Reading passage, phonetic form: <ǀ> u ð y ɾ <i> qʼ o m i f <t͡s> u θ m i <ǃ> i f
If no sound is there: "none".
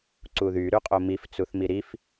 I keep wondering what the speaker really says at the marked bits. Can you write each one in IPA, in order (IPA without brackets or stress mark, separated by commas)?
ǀ, y, t͡s, ɾ